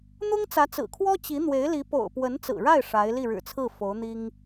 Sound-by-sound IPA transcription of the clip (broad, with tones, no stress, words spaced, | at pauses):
n̪ʊ˥ŋt͡sä˧˥t͡sɹ̩˨˩kʰwɔ˥ t͡ɕi˧˥n̪we˧˥ɪ̯li˧˥ po̰˨˩ʊ̯pwə˧˥nt͡sɹ̩˨˩ɻa˥˩ɪ̯ ʂa˧˥ɪ̯ li˥˩ɻɻ̩˨˩t͡sʰɹ̩˥˩ fo˧˥ʊ̯n̪i˥ŋ